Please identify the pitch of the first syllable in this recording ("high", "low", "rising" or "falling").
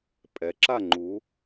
rising